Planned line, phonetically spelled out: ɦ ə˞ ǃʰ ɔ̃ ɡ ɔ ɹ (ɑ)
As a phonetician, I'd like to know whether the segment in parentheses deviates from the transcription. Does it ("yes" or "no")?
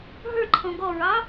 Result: no